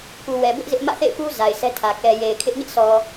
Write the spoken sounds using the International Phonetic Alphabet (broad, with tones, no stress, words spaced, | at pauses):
ku˨wɛ˨ bʊ˦ʔ zɪ˦ʔ mä̰˦˨θḛ˦˨ɪ̯pu˦ za˨ɪ̯sɛ˦tʰä˨ kɛ˨je˨ɪ̯kʰɪ˦ʔ ɲɪ˦ʔsɔ˨